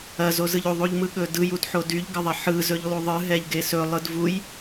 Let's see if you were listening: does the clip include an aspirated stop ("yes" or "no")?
no